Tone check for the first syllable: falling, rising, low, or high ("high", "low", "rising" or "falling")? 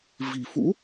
low